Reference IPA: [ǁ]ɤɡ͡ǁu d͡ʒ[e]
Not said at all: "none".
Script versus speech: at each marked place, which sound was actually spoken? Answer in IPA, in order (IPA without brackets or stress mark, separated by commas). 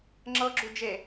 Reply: ŋ͡ǁ, e